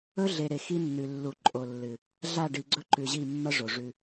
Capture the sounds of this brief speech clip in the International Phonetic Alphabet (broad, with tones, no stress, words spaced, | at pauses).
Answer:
ɵ˦ɮe˨ɾe˨ xi˦nːʉ˨ lːu˨ǃʼo˨lːɨ˨ | ɮa˦˨ɖi˨ ɡ͡ǀɵ˦ǃʉ˨ʑi˦˨ mːɐ˦ ʐo˨ʐʉ˦